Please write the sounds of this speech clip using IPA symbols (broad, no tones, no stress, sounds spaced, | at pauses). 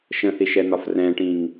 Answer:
ʃ ə̃ θ i ʃ ɛ n̪ ɒ f r ɛ̃ ʈ ĩ ŋ